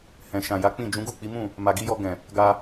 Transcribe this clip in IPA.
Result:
h ɛ̃˨ ʃ ã˨ j a˨˦ k͡p ĩ˦˨ d͡ʒ ũ˨˦ ɡ u˦˨ k͡p i˨˦ m ũ˦˨ | m a˨ ɡ i˧ j ɔ˧ ɡ ɛ̃˨ | ɡ a˧

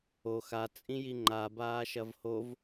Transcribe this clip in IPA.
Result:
o x a t͡sʼ ĩ j i ŋ͡ǃ a b aː ʃ ɐ v h o v

